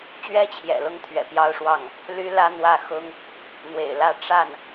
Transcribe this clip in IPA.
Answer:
t͡ɕ ɥ ɛ˥ t͡ɕʰ j ɛ̰˨˩ l ʊ˥˩ ŋ t̪ʰ ɥ ɛ̰˨˩ p j ɑ˥˧ ʊ̯ ʂ w ɑ˥˩ ŋ | l y˥ l ä˥ n̪ w ä˥˩ x ʊ˥ ŋ | n̪ w ḛ˨˩ ɪ̯ l ä˥˧ ʈ͡ʂ a˥˩ n

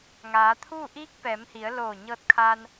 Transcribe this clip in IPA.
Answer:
ŋ aː˩˧ t̪ʰ uː˥˨ ʔ iː˧˥ k̚ p ɛː˩˧ m h i˩˧ ə̯ l oː˧˩ ɲ ɤː˧ t̚ kʰ aː˧ n

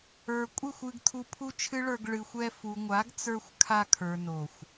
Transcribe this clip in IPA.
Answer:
ə˞˨ kʷʼ ɨ˦˨ xʷ ɨ˧ ɡ t̪ʰ u˧ pʰ u˦ t͡ʃʰ ɨ˦ ɭ ə˞˧ ɡ ɭ ɨ˨ xʷ ɛ˧ f u˨ ŋʷ a˨˦ ɡ t͡s ə˞˧ xʷ kʰ a˧ kʰ ə˞˨ n o˨ xʷ

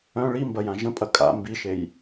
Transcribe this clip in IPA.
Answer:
œ̃ ɭ i m b ɐ j ã ʒ ə̃ pʼ ɐ kʼ a̰ m b i ʃ e j

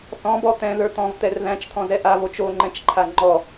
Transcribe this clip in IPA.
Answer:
θ ɔ̃ b ɔ t̪ ɛ̃ ð ə˞ t̪ ɔ̃ v t̪ ɛ r ð æ̃ t͡ʃ t̪ʰ ɔ̃ z ɛ ʔ a v o t͡ʃ o ŋ͡ǃ ɛ̃ t͡ʃ ǃʰ a ŋ͡ǃ ɔ

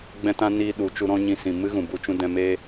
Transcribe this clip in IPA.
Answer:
ɡ͡b ɛ̃˦ t ã˦ n i˧ ɗ u˨ t͡ʃ u˧ ɾ ɔ̃˦ ɲ ĩ˧ s ĩ˨ m ɨ˦ ɣ ũ˨ b u˧ t͡ʃ ũ˧ d ɛ̃˧ m e˦

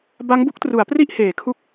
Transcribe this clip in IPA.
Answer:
b a˦˥ ŋ b u˦˥ k̚ t r u˩˦ a̯ p r i˥˩ ʔ h eː˩˦ kʰ u˥˩ k̚

